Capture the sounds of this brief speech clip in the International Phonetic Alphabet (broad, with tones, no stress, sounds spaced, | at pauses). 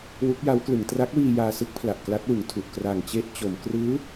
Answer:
w u˦˥ k̚ j a˦˥ w k l ɯ˩˦ ŋ t r a˦˥ k̚ w iː˧ j aː˧ s ɯ˥˩ k̚ pʰ l a˨˩ ʔ k l a˦˥ t̚ w ɯ˩˦ ŋ tʰ u˨˩ ʔ k r a˨˩ ŋ t͡ɕ e˥˩ ʔ t͡ɕ o˩˦ m k r ɯː˦˥